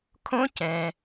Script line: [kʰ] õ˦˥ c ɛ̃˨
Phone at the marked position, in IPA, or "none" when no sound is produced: kʰ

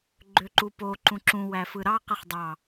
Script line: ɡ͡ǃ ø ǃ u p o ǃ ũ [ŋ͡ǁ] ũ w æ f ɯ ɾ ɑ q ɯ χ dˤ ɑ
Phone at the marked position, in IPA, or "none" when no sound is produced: ǁ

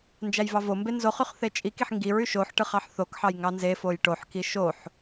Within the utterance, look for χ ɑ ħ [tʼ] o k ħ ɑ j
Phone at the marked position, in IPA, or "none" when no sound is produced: θ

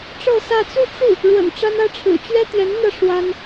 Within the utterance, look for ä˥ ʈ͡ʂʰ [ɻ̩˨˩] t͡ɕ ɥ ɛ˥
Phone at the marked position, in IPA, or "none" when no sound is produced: ɻ̩˨˩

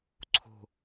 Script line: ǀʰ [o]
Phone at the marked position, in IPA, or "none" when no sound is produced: o̤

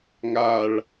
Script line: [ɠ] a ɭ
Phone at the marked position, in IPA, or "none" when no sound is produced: ŋ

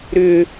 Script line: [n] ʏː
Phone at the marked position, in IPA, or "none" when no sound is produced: ɾ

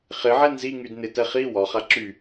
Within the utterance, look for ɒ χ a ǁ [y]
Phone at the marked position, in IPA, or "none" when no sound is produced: y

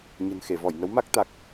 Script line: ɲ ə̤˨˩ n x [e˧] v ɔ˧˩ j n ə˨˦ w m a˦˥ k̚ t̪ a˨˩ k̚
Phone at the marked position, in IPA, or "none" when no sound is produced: e˧˩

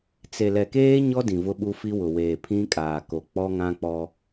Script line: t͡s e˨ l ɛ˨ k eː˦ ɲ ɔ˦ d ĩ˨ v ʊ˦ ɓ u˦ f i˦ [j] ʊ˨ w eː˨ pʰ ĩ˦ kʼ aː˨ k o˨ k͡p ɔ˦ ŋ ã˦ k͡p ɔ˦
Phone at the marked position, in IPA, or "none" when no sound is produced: w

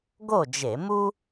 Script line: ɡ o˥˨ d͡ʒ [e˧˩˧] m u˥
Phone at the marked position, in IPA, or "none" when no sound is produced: e˧˩˧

